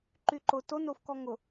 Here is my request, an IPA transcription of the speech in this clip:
ǃ y ǃ ʊ t o n o f k ɔ ŋ ʊ

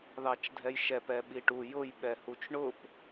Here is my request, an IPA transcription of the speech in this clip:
ð ɑ t͡ʃ dʱ ɛ j ʃ ɛ p ɛ ɓ i ʈ u j ʊ j ɓ ɛ h u t͡ʃ ɳ ʊ p

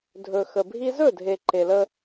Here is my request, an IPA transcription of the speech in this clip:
dʱ ɵ˨ x ə˨ bʱ i˦ z ɵ˦˨ dʱ e˨ ǃ e˨ l ə˦

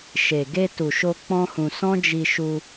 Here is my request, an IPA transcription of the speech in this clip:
ʃ e˨ ɡ e˧ t u˨ ʃ o˧ k͡p ɔ̃˦ h ũ˧ s ɔ̃˦ d͡ʒ i˧ ʃ u˧

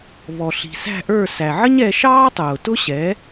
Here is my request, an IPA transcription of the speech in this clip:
β ɔ˩ ɬ i̤˩ s æ̤˥˩ ʔ ə˞˥˩ s æ˩ ʕ ə˥ ɲ ɛ˧ ʃ ɑː˥ tˤ ʊː˩ t ʊ˥ ɕ ɛ˩˥

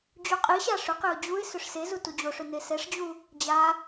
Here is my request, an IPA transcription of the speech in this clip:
d͡ʑ u qʼ i ɕ a ʂ ʏ q e ʊ̯ d͡ʑ u ɪ̯ s ʏ ʂ s e z u t u d͡ʑ o ʂ ʏ n e s ɛ ʂ d͡ʑ u | d͡ʑ a

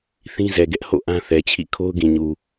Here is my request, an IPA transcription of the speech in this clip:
θ ĩ˦ z ɛ˨ ɡ ɛ˦ ʔ h o̰˦˨ ʔ ã˦ θ ɛ˨ t͡ɕʰ ḭ˦˨ kʰ o˦ ʊ̯ ɡ ĩ˨ ɲ u˨

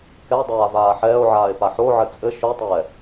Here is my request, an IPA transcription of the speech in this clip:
k ɛ dˤ aː v aː ħ ɛː o̯ ʕ aː e̯ p a ħ o ʕ ɘ t͡sʼ ɘ ʃ o tˤ ɛː

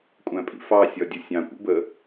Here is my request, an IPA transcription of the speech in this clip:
kʷʼ æ̃ pʼ ḭ f ɑ sʲ ɒ dʲ ʊ sʲ ɑ̃ kʷ ḭ b ə

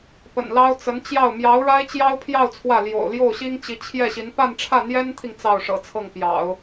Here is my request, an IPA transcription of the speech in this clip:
p ə̰˨˩ n l ɑ˥ ʊ̯ t͡s ə˧˥ n t͡ɕ j ɑ˥˩ ʊ̯ m j ɑ˧˥ ʊ̯ ɻ a˥ ɪ̯ t͡ɕ j ɑ˥ ʊ̯ pʰ j ɑ˥˧ ʊ̯ t͡sʰ w ä˥˩ l j o̰˨˩ ʊ̯ l j o˥˩ ʊ̯ ɕ i˥ ŋ t͡ɕ i˧˥ t͡ɕʰ j ɛ˥˩ ɕ i˧˥ n p a˥˧ n ʈ͡ʂʰ ä˥˩ n̪ j ɛ˥ n t̪ʰ i˨ ŋ t͡s ɑ˥˩ ʊ̯ ʂ ɤ̰˨˩ t͡sʰ ɤ˥˩ ŋ p j ɑ̰˨˩˦ ʊ̯

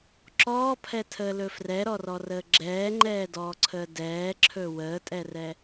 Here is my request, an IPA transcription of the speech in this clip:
ǁ ɔː pʰ ɛ tʰ əː l ɵ f r ɛ ɾ ɔ r ɔ r əː ɡ͡ǁ ɛː ŋ͡ǃ ɛː d ɔː ǀʰ əː d ɛː ǁʰ ɵ w əː tʼ ɛ r ɛ

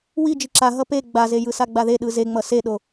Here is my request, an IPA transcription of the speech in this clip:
w i d͡ʒ i ǁ a ɦ ʌ p e ɡ͡b a z e j ɯ s a ɡ͡b a ð e ɗ ɯ z e ŋ͡m ʌ s e ɗ o

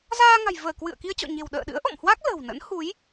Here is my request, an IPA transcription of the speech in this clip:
z aː˧ ŋ a̤˨˩ j v əː˧˩ k w ɨ̰˧˨ ə̯ k i˧ ə̯ t͡ɕ ɔ̰˧˨ ɲ e̤˨˩ w ɗ ə̰ː˧˨ ɗ ɨ̰˧˥ ə̯ ʔ ɔ̰˧˨ m h w a˦˥ k̚ l ə̤˨˩ w n ə̰˧˥ n h u˨˦ j

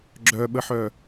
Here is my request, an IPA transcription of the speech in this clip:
ɡ͡ǁ œ ɓ ə ħ œ

